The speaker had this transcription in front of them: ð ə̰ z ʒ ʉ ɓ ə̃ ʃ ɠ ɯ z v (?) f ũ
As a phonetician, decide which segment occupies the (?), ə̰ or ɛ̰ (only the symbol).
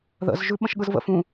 ə̰